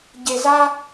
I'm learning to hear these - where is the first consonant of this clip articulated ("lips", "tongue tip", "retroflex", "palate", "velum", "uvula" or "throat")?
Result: palate